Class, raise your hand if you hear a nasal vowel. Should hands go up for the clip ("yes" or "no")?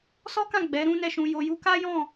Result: yes